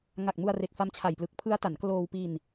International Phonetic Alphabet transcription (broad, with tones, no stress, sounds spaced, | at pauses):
ŋ a˨˩ k̚ m u˧ a̯ r e˨˩ k̚ f a˦˥ m t͡ɕʰ a˨˩ j p l ɯ˨˩ k̚ pʰ ɯ˦˥ a̯ t a˩˦ n k l oː˧ w p i˧ n